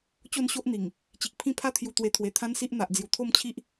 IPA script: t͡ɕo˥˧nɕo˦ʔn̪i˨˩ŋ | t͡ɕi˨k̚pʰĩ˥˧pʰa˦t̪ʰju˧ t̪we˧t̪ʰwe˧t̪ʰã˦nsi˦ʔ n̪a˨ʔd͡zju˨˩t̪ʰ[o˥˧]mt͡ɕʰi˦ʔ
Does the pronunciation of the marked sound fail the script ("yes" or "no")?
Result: no